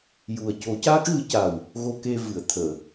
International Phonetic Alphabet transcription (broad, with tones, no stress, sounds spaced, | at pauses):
j u˨˩ ə̯ c o˨˩˦ c a˦˥ k̚ ɣ ɨ˨˩˦ c a˨˩ w | ɣ o˧ k e˧ v ɨ˨˩˨ ə̯ t̪ʰ əː˨˩˨